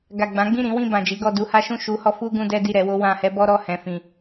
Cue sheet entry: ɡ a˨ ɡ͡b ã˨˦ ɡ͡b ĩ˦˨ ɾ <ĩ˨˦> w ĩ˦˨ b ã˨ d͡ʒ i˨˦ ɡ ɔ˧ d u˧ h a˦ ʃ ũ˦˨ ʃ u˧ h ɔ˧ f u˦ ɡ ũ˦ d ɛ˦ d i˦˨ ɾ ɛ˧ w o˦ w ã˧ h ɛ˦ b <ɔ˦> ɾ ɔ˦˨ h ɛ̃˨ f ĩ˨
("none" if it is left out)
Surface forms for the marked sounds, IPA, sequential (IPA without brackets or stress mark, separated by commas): ĩ˨˦, ɔ˦